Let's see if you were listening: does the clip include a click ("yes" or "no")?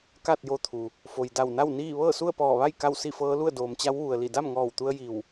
no